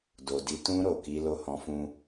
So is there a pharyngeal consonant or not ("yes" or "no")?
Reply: no